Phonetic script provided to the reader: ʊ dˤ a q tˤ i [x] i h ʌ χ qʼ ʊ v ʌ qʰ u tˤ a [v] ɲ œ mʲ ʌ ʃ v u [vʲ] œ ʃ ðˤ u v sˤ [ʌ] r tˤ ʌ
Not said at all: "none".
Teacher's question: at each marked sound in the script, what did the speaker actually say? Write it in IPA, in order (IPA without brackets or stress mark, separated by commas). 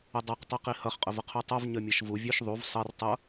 q, v, vʲ, ʌ